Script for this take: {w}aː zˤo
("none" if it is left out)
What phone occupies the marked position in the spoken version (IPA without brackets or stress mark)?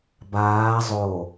b